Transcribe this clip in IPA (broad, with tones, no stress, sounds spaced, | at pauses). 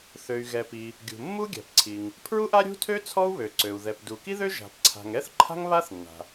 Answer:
θ ø˩ y̯ ɣ ɛ˩ p i˩ | ɡʲ ṳ˩ mː u˥ ɡʲ a̤˩ p ǀʰ i˩ ŋ | pʰ ɹ u˥ ʔ a˥ ɾʲ ṳ˥ tʰ ø˥ t͡sʰ ɔ˥ u̯ β ø˩ ǀ ø˩ u̯ ð ɛ˩ p d u˩ k i˥ ð ø˥ ʒ a̤˩ p ǀʰ a̤˩ ŋ ɛ˥ θ ǃʰ a̤˥ ŋ β a˥ θ nː a̤˩